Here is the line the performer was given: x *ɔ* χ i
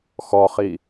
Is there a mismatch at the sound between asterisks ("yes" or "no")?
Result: no